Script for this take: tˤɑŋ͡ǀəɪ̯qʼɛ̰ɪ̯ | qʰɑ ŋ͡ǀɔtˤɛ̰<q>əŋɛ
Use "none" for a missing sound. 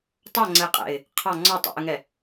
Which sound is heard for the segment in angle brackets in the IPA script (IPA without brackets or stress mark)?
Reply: ʔ